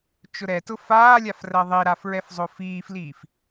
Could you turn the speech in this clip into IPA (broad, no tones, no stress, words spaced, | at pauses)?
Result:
t͡ʃʊɾɛtʊ faːlʲaf rɜðˤiɾaf ɹɛfzˤofiːfliːf